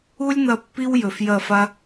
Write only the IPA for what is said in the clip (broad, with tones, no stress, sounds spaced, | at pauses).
u˦ lʲ n̪ ɐ˧ pː i˦ w j ɵ˨ f j ɐ˦˨ f a˦